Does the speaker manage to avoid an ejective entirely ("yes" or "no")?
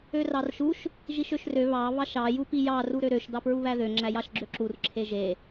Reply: yes